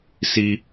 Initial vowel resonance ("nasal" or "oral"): oral